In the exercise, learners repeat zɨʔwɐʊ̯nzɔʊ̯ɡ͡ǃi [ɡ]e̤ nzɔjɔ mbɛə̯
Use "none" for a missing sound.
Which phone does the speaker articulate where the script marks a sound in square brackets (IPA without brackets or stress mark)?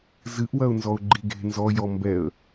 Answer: ɡ